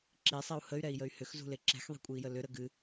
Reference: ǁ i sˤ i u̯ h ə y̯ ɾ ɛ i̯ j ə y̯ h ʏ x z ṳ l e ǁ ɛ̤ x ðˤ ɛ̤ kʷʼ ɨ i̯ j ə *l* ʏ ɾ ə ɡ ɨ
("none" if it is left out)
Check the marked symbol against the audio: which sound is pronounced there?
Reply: l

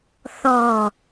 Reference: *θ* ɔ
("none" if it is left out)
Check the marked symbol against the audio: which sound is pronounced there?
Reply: θ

